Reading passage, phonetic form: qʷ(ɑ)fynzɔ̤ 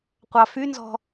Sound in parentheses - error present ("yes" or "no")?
no